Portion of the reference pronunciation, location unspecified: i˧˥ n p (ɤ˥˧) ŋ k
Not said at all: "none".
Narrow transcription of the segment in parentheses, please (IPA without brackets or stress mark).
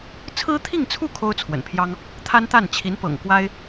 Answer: ɤ̰˨˩